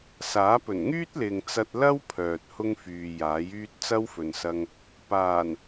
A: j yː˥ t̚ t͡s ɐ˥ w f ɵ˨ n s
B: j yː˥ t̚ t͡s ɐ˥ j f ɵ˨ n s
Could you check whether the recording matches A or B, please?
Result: A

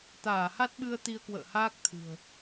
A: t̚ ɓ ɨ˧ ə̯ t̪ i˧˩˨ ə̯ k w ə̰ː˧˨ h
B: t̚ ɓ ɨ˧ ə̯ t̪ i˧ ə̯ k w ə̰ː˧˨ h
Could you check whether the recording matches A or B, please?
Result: B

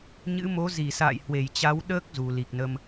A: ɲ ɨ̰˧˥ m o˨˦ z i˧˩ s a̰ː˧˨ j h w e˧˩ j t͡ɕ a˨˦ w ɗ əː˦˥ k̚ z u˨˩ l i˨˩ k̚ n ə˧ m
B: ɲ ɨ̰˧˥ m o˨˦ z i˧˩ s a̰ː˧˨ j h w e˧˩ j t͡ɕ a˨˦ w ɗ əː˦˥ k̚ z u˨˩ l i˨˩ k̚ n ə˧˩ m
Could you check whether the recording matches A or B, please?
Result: A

